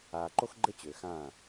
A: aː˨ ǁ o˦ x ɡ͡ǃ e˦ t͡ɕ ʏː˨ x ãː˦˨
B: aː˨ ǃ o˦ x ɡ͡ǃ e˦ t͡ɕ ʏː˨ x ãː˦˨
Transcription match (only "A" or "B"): B